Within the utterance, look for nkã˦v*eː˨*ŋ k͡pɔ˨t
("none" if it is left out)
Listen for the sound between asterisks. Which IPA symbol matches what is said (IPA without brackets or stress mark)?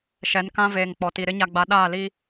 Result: eː˨